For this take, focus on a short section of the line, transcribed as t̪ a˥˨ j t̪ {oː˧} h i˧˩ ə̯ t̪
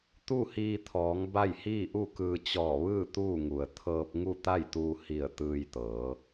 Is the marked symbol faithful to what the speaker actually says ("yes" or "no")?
no